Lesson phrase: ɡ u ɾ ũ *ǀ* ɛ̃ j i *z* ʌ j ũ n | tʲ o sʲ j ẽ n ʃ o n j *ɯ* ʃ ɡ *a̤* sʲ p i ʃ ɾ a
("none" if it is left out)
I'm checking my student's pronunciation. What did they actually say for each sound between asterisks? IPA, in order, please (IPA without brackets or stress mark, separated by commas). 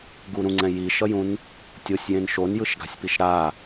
ŋ͡ǀ, ʃ, ɯ, a̤